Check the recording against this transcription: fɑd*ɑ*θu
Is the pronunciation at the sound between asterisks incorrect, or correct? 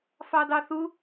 correct